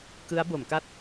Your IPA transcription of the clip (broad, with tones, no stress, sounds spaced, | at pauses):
k ɯ˦˥ a̯ b o˩˦ m k a˥˩ t̚